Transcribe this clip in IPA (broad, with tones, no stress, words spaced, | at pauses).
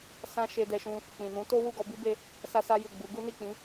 sã˦ ʃe˧dɛ˧ʃũ˧ | k͡pĩ˨nũ˨˦to˦ wu˦˨ɡɔ˧bi˦be˧ | sa˦sa˦ ju˦˨ɡ͡bu˨˦ ɡu˦ni˦˨k͡pĩ˨˦